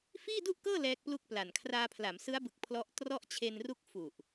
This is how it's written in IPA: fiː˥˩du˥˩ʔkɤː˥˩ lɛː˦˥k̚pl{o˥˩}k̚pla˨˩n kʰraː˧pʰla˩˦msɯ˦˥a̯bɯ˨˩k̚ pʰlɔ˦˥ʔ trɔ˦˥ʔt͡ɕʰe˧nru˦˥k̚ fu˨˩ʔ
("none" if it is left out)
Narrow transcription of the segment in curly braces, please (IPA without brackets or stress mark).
u˥˩